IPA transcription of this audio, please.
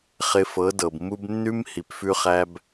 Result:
χ ɪ˧ f ɤ˨˦ d ɤ˨ b m u˦ b nː ʉ˦ m h i˨ p f ʉ˦ χ æ˦ b

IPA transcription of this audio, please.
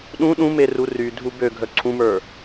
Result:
ɗ ũ ɗ ũ m e r u r y dʱ u b ø ɡʱ œ ǀʰ ũ m ə˞

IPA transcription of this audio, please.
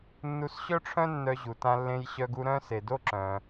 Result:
nː u˧ s ɕ œ˥ ʈ͡ʂʰ œ̃˥ nː œ˧ ʑ u˩ t ã˧ lː ẽ˧ j ɕ œ˧ ɡ u˧ ɾ œ̃˥ s e˩ d o˥ ǁ œ̃˩

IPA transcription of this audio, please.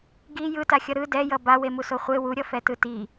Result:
ɡ i j ɯ t a xʲ ʌ ɾ ɯ d ɛ j ʌ b a w e m u s o χʷ e w u ɾʲ ʌ f ɛ t ɯ t i

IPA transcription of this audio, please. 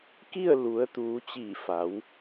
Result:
k i˥˨ ə̯ l u˩˧ ə̯ t̪ uː˩˧ t͡ɕ iː˧˩ f a˩˧ w

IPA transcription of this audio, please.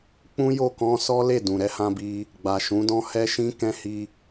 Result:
k͡p ũ˦ j o˦˨ k ɔ̃˧ s ɔ˦ l e˦˨ d ũ˨ ɾ ɛ˨˦ h ã˧ b i˧ | ɡ͡b a˨ ʃ ũ˨˦ d ɔ̃˦ h ɛ˦ ʃ ĩ˦ k ɛ̃˧ h i˧

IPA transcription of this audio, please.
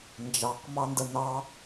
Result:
n d͡ʒ ɑ q m ɑ n d ə n ɑ

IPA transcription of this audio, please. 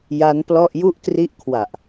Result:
j a˦˥ n p l ɔ˥˩ ʔ j u˦˥ ʔ t r i˦˥ ʔ kʰ w a˨˩ ʔ

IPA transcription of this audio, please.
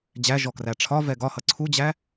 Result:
d͡ʑ æ ʒ ɔ k r æ ʈ͡ʂʰ ɒ v ɛ ɡ ɒ h ʌ ǀʰ u d͡ʑ æ

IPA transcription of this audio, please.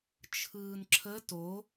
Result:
t͡ʃʰ ɯː n ǁʰ ə t o

